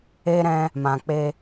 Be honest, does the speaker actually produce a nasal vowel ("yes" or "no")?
yes